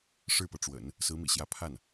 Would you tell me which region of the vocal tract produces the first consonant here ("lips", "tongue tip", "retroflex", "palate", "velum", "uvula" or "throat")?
retroflex